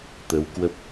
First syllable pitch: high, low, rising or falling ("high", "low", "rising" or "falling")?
rising